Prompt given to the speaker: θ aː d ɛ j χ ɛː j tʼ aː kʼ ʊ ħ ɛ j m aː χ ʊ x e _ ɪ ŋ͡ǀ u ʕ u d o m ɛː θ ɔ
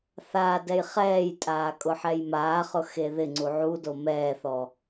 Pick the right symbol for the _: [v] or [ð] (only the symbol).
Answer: ð